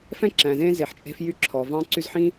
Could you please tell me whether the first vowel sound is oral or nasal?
nasal